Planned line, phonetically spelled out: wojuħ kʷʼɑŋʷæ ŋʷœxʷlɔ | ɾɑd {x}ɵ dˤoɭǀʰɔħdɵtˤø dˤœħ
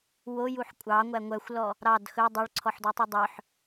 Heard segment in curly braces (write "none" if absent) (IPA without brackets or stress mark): x